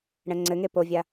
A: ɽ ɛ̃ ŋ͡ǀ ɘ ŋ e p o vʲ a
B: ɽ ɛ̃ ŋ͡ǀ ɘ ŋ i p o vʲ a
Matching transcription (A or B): A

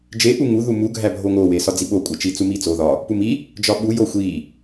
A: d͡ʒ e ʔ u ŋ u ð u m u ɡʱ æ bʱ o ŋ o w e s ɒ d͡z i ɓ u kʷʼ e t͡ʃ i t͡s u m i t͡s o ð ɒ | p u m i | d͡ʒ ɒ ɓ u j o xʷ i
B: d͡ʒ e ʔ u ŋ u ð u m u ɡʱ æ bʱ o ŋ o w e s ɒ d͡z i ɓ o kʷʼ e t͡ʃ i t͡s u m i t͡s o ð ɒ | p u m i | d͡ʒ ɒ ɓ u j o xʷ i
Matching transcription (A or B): B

